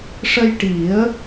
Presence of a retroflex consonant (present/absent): present